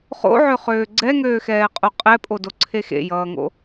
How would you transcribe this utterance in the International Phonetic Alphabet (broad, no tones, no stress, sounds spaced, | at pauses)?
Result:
χ o̰ ʕ ø χ øː ɡ͡ǀ ɛ ŋ øː x ɛː qʼ o qʼ ɛ pʼ o d o ǀʰ e x ḛ j ʌː ŋ o̰